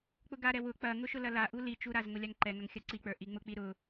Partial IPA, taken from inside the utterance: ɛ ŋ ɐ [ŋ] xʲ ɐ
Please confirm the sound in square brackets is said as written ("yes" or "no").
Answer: yes